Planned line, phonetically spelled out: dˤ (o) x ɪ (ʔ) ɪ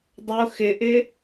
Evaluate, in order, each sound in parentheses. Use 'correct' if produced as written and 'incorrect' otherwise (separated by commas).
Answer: correct, correct